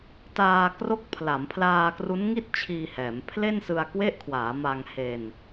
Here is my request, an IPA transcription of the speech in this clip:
t aː˧ k r o˦˥ k̚ pʰ l a˩˦ m pʰ l aː˧ k r u˦˥ n ŋ i˥˩ t̚ t͡ɕʰ iː˧ h ɛː˩˦ m pʰ l e˥˩ n s ɯ˧ a̯ k w e˦˥ ʔ kʰ w aː˩˦ m a˧ ŋ h e˧ n

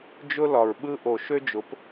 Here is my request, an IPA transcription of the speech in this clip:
d͡ʒ ʊ˦ l ɒ˨ ɹ ɓ ɯ˦ ʔ o˨ ʃ ø˦ d͡ʒ ʊ˨˦ p

